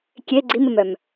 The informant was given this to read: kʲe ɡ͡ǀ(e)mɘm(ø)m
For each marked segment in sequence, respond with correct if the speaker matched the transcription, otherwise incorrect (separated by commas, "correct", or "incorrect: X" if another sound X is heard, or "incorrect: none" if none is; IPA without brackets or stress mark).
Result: incorrect: i, incorrect: œ